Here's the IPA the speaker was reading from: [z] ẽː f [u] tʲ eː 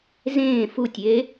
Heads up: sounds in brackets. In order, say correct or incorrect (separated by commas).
correct, correct